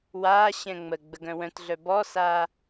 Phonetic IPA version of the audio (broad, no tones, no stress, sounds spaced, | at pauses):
w aː ɕ ɛ̃ ŋ͡m ə ɡ͡b ə ɡ œ̃ w œ̃ t ɮ œ b ɔ s aː